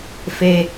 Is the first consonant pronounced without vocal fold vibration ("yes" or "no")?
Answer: yes